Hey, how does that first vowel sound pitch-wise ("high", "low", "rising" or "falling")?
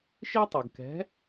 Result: high